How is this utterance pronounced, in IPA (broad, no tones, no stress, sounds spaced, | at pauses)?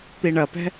t̪ i ɳ ɐ p ɛ̤